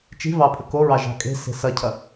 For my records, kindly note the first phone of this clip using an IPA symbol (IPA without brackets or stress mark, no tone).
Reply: t͡ʃ